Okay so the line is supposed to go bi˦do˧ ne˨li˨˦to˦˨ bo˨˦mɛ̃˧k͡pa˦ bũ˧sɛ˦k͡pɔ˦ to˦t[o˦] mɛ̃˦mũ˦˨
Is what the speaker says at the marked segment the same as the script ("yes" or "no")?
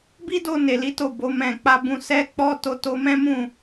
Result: yes